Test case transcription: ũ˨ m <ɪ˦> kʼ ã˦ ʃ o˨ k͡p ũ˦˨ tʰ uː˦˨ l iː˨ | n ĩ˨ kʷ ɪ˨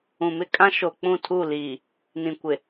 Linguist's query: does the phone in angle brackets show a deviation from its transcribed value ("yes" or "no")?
no